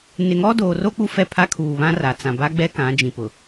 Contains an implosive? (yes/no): no